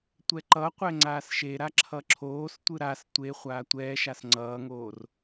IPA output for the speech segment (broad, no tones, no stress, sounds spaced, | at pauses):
tʷ ɛ ǃ ʌ qʷ ɛ ŋ͡ǀ aː s ʃ e ɾ a ǁʰ ʌ ǁʰ oː s tʷ ɯ ɾ a s tʷ e χʷ aː tʷ ɛː ʃ a s ŋ͡ǀ ʌː ŋ oː r